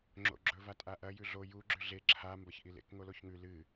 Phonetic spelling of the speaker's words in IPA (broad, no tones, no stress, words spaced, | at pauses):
ŋ͡ǁo̰ɡ͡ǁɵ vatʼaʔɐ jʉɮo ju ɡ͡ǁʉɮe ǁʰa mbɐçʔilḛk ŋoloçŋʉ lɨ